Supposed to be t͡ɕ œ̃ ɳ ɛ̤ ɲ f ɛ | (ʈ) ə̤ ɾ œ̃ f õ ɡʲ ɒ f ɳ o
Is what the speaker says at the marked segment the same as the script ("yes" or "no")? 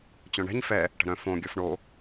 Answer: yes